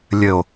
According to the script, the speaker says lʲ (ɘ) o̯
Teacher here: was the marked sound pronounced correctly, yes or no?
yes